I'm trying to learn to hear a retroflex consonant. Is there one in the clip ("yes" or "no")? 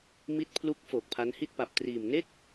no